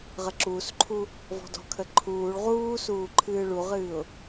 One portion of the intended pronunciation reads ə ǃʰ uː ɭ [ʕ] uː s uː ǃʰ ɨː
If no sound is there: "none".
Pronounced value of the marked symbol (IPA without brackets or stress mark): ʁ